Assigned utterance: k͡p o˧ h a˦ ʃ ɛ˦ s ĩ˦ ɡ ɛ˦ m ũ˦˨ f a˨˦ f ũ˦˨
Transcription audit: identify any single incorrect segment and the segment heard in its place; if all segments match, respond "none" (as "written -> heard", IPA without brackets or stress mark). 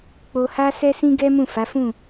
ʃ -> s